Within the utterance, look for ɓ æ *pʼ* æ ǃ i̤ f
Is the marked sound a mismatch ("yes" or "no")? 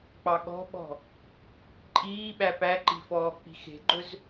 yes